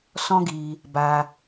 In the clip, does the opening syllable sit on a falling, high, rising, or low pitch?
high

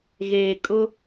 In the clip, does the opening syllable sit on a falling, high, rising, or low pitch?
low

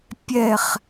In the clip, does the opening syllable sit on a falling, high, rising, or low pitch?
falling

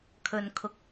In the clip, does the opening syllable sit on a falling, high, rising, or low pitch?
low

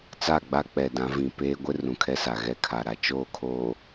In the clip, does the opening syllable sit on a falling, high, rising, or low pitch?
falling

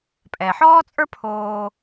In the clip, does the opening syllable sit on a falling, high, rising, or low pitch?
low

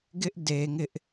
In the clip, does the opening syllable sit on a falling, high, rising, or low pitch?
high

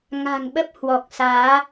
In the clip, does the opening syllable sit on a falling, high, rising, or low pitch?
low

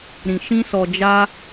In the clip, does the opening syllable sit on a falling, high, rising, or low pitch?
low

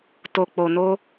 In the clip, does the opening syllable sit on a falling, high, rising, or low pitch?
low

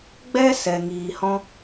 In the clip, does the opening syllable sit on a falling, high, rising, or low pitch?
high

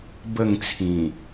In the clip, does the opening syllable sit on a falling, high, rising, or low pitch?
falling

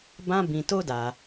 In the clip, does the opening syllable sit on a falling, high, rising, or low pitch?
high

